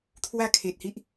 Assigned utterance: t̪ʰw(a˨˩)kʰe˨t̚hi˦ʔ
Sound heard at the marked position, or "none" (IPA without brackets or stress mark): a˥˧